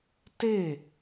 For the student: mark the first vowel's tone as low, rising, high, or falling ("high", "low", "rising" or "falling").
falling